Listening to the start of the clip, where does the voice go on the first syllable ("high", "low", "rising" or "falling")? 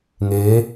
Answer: rising